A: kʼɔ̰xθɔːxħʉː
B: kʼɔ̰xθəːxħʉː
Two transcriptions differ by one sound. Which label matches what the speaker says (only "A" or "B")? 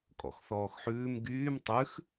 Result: A